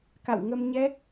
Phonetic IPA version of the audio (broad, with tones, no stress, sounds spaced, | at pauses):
k a̰˧˨ w ŋ ə˧ m ɲ ɛ˦˥ k̚